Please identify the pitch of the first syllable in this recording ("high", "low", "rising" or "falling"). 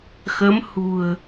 rising